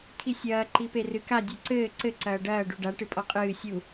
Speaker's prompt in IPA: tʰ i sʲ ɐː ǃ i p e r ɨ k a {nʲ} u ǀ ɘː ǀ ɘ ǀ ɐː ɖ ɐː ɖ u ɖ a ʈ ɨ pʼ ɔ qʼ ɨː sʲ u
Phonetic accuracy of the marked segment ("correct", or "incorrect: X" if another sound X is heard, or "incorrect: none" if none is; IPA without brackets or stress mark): incorrect: dʲ